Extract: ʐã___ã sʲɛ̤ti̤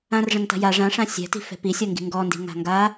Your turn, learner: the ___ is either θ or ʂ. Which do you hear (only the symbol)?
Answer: ʂ